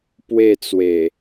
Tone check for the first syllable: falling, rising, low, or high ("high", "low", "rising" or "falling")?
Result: falling